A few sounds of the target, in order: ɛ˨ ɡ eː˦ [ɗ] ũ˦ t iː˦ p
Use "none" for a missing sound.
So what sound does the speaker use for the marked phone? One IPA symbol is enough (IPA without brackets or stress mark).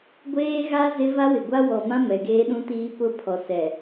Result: ɗ